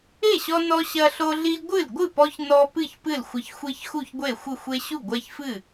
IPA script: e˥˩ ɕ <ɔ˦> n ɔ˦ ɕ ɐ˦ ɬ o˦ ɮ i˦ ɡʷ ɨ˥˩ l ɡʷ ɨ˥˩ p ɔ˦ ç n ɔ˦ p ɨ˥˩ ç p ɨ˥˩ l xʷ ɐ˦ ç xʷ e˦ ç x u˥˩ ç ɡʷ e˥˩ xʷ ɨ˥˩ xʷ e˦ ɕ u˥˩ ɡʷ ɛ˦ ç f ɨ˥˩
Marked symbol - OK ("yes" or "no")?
yes